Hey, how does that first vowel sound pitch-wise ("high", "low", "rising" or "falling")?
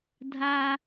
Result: high